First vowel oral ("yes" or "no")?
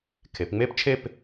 yes